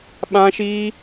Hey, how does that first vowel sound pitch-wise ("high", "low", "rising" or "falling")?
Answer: high